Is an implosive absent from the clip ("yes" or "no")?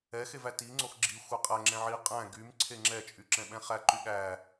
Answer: no